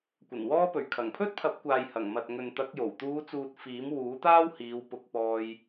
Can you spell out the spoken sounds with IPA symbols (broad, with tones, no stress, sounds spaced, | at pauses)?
kʷ ɐ˨˩ n w ɔː˧ p ɵ˨˩ ɥ kʰ ɐ˨˩ ŋ pʰ ɵ˥ t̚ pʰ ɐ˨˥ p̚ kʷ aː˨ j h ɐ˨˩ ŋ m ɐ˨ t̚ ŋ ɵ˨ n t̪ ɐ˨˥ k̚ j o˨˩ w t̪ uː˨˧ t͡s uː˨ t̚ f iː˨˥ m w uː˨˥ t̪ aː˥ w h iː˨˧ w p ʊ˧ k̚ p ɔː˧ j